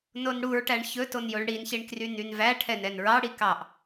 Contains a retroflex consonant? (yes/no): yes